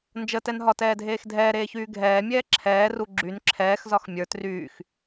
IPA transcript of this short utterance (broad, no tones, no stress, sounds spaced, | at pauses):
n d͡ʒ ə t ɛ n ɦ ɒ t ɛː dʱ eː x dʱ ɛː ɾ eː ç yː ɡʱ ɛː mʲ ɛː ǁʰ ɛː r u ɡ͡ǁ y n ǁʰ ɛː x z ɒ x mʲ ə˞ t r yː x